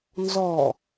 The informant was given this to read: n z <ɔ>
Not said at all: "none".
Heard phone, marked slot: ɔ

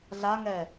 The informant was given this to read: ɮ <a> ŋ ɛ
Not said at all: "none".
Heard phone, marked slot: a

